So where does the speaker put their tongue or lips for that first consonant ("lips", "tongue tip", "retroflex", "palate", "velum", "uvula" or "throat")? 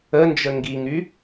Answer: tongue tip